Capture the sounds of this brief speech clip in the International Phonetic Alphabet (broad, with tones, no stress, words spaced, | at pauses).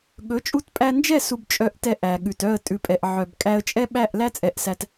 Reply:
ɠɵ˨˦t͡ʃʼu˧tpʼæ˧nd͡ʒɛ˦˨ su˧bt͡ʃʼœ˧ʔtɛ˧ ʔæ˨ɠʉ˨t œ˦˨ə̯ tʼʉ˨pʼɛ˨ʔ ʕœ˨b kʼæ˧ə̯t͡ʃʼɛ˦ɓæ˦˨ʔlæ˦ t͡sʼɛ˧ʔsæ˧t